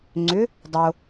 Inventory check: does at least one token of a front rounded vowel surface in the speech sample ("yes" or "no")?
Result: yes